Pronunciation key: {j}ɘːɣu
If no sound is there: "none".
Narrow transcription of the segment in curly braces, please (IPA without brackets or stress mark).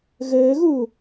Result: ɣ